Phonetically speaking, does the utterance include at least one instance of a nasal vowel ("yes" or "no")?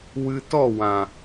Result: yes